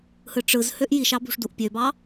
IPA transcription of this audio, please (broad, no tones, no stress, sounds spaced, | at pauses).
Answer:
h ɯ ʈ͡ʂ ɯ z h ø ʔ j i ʃ ɑ b ṳ ʂ d u ʔ pʲ ø b ɑ